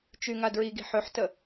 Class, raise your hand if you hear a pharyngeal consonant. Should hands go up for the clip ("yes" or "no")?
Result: yes